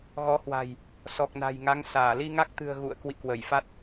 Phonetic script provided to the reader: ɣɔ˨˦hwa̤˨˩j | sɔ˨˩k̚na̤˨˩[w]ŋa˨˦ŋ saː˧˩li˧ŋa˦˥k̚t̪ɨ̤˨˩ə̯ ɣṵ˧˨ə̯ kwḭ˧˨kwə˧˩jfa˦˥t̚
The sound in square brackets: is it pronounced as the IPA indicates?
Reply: no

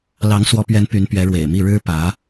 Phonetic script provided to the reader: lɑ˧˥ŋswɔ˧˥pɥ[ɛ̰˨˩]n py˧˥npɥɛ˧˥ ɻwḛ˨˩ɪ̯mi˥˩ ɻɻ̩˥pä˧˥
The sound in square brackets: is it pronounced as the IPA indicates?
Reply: no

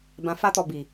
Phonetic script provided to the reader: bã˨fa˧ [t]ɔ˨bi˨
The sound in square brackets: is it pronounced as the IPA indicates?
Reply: yes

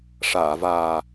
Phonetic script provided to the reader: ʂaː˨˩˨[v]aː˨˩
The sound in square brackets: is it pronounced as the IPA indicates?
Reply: yes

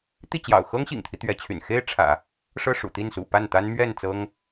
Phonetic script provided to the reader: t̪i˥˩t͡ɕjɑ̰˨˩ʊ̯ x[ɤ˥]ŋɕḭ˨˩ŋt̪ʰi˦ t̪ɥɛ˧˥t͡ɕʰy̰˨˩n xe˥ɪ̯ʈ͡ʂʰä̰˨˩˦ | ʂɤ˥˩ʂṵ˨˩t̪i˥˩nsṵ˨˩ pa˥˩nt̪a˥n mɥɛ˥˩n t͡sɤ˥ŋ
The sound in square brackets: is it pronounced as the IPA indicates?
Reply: yes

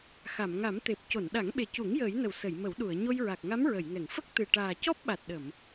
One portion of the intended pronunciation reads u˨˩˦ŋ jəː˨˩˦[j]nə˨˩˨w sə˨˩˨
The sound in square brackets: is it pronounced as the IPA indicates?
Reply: yes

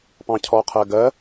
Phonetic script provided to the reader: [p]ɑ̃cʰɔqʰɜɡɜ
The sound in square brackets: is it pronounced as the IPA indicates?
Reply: yes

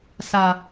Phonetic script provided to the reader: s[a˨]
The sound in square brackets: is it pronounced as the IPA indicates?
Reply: yes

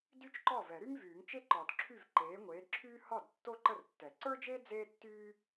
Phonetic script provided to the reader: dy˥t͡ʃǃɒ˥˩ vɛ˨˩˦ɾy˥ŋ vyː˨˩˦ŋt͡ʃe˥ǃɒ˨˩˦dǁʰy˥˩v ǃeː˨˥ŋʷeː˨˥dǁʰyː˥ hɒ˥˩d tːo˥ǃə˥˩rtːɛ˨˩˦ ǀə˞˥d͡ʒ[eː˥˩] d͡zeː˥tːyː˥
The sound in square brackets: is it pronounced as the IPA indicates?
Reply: no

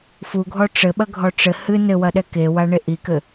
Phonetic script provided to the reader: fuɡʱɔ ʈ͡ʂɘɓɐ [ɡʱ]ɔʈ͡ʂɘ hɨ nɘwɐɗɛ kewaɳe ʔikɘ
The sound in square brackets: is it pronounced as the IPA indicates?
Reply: yes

